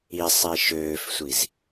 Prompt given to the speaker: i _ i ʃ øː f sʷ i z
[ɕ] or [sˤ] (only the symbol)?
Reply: sˤ